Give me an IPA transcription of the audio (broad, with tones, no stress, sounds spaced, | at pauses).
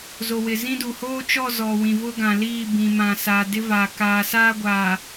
z o˨ w ɪ˨ z ĩ˦ d u˨ h oː˦ t͡ʃ ɔ˦˨ z ɔ˨ w ĩ˨ v ʊ˦ ɡ ã˨ l iː˦˨ b ĩ˨ m ã˨ s aː˨ d ɪ˦ v aː˨ k aː˨ s aː˦ ɡʷ aː˨